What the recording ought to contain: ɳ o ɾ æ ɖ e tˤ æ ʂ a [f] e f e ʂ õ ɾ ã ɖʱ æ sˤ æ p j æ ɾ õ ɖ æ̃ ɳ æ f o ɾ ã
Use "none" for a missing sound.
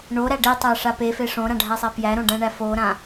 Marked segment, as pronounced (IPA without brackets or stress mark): p